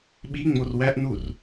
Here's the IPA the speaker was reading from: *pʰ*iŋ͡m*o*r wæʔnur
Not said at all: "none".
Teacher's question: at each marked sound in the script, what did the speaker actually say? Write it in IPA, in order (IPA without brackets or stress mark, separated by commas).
ɓ, o